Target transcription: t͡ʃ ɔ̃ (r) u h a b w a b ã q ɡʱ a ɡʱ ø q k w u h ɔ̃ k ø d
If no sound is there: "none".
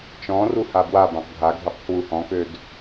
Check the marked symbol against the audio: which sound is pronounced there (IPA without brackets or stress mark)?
r